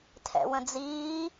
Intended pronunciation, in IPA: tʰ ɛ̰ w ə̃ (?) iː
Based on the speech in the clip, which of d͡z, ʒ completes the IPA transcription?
d͡z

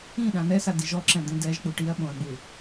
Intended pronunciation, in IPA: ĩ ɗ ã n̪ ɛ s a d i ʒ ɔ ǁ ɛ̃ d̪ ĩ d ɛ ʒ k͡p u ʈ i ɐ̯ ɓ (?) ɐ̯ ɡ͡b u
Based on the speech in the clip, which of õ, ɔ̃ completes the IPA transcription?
õ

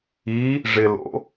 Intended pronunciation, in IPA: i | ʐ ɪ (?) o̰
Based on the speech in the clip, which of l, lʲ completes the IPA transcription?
l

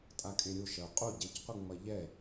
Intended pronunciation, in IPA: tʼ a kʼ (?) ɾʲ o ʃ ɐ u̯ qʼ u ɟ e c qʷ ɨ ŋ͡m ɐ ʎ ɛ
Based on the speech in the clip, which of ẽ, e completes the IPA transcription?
ẽ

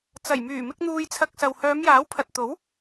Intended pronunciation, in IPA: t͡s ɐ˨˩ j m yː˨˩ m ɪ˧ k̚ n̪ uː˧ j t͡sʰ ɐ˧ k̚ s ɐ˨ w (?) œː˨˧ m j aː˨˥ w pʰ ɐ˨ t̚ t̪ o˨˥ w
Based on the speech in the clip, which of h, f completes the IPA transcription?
h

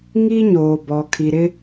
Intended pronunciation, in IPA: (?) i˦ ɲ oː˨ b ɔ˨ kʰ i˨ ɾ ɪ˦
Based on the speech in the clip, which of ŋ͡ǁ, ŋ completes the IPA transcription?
ŋ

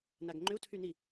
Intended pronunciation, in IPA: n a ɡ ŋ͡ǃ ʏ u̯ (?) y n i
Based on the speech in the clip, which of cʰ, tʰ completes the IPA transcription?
tʰ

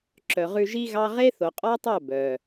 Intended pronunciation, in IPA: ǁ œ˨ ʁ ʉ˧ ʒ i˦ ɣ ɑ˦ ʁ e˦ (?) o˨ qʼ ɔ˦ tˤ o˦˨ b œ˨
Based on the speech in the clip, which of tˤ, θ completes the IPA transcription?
θ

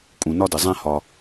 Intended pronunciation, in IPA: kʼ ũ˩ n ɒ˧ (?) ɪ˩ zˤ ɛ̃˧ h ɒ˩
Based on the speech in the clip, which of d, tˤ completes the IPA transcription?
d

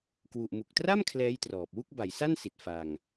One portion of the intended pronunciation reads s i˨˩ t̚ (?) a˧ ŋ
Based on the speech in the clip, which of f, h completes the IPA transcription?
f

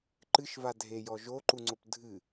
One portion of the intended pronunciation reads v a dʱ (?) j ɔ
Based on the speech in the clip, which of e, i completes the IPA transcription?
e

